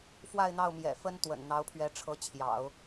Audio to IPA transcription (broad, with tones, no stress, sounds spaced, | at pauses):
f w a˥˧ ɪ̯ n̪ ɑ˥˩ ʊ̯ m j ɛ̰˨˩ f ə˥ n t̪ w ə̰˨˩ n n̪ ɑ˧˥ ʊ̯ pʰ ɥ ɛ˧˥ ʈ͡ʂʰ ɤ˧˥ t͡ɕʰ j ɑ̰˨˩˦ ʊ̯